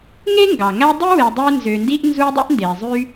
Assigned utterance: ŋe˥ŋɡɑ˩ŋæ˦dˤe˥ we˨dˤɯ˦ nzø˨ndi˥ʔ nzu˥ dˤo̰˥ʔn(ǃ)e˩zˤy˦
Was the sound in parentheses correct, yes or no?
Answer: no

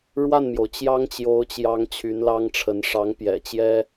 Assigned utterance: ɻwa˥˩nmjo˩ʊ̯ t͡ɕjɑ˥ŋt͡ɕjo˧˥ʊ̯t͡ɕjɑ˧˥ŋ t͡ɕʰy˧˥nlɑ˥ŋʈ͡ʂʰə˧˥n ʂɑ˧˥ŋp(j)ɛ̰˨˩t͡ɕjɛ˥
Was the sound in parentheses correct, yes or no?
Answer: yes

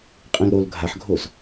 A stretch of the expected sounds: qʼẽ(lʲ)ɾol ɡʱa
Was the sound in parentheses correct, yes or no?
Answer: no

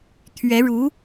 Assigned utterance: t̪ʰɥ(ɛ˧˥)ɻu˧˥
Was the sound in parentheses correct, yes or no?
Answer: yes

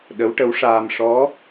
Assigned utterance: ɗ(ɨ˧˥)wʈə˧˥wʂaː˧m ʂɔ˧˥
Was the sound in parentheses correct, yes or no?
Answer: no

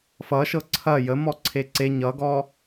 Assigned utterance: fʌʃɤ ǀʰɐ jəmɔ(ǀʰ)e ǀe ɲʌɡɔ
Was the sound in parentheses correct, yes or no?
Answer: yes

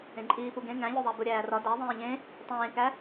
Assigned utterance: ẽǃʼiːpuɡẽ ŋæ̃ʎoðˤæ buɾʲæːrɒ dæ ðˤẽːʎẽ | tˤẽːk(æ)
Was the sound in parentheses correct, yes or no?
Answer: yes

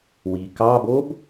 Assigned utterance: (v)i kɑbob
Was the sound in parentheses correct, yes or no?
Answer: no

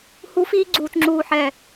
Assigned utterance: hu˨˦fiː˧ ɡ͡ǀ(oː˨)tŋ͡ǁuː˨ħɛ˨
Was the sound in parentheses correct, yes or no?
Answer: no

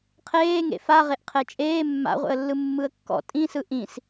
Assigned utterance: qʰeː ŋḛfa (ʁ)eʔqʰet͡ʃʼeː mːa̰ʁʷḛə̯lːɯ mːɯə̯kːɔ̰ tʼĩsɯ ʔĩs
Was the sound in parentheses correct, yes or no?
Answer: yes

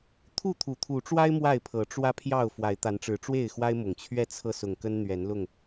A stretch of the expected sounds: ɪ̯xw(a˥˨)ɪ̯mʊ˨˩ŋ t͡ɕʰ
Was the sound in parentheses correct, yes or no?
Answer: no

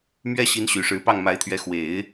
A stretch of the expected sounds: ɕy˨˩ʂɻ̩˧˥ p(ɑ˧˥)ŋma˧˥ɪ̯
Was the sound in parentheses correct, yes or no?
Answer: no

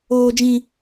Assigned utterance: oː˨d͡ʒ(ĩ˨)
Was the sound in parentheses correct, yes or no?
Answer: yes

